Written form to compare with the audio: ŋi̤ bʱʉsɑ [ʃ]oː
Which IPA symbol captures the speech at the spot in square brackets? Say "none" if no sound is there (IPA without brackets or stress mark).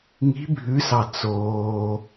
t͡s